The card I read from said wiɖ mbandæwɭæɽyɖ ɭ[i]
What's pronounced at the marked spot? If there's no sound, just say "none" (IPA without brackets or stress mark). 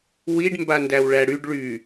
y